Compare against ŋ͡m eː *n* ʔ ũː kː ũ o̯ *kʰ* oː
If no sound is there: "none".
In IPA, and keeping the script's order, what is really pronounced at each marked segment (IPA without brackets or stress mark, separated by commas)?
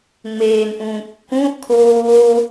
n, kʰ